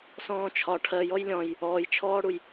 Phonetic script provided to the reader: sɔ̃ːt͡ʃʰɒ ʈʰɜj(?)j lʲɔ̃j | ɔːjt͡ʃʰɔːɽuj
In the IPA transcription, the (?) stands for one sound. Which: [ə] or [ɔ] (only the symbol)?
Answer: ɔ